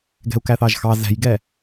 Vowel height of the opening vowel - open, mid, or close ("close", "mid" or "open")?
mid